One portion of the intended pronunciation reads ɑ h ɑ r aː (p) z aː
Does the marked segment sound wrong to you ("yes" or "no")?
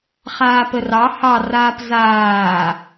no